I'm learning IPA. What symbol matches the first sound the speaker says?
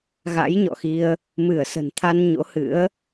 ɣ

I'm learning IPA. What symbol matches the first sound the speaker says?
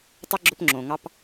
tˤ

